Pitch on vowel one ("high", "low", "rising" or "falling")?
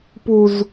high